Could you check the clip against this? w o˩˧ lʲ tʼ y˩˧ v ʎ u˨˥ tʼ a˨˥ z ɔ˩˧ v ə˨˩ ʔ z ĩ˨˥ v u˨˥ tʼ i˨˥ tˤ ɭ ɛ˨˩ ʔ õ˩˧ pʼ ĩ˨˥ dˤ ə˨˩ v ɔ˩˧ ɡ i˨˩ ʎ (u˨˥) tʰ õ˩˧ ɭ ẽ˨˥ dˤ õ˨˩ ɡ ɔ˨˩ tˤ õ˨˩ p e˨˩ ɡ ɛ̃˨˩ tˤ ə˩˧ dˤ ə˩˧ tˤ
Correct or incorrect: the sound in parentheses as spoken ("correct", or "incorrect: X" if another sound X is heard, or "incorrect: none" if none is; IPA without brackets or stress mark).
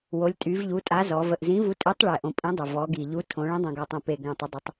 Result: correct